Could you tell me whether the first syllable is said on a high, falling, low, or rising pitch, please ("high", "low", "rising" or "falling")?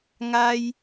high